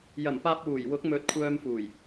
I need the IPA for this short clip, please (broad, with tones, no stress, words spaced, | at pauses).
jɐ˨˩mpaː˧p̚wuː˨˩j wʊ˨˥k̚mɵ˨t̚ kʷʰœː˧mfuː˨˩j